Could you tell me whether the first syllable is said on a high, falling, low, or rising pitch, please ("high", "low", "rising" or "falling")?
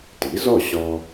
rising